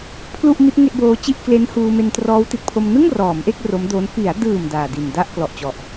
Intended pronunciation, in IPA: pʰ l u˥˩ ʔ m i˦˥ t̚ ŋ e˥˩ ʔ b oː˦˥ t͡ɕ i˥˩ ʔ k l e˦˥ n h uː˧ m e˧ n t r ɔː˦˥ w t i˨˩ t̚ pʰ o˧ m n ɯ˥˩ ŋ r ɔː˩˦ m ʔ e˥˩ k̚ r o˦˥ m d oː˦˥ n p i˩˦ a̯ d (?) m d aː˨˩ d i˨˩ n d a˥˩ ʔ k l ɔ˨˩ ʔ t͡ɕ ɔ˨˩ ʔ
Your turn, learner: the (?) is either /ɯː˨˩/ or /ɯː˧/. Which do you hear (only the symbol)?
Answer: ɯː˨˩